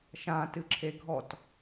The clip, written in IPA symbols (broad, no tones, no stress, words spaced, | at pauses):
ʃãtɨǁʰe ɡʱɔt